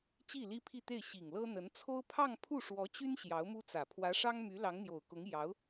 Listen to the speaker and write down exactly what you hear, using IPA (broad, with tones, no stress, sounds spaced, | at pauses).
t͡ɕ i˥˩ l i˥ pʰ i˥˧ t̪ e˥˩ ɪ̯ ɕ i˨˩ ŋ l ɤ˥ n̪ ə˧˥ n t͡sʰ o˥ ʊ̯ pʰ ɑ˥˧ ŋ pʰ u˥˩ ʂ w ɔ˧˥ t͡ɕ y˥ n ɕ j ɑ˧˥ ʊ̯ m u˥ t͡s ä˨˩ pʰ w ä˧˥ ʂ ɑ˥ ŋ m y˧˥ l ɑ˧˥ ŋ n̪ j o˨˩ ʊ̯ k ʊ˧˥ ŋ j ɑ˧˥ ʊ̯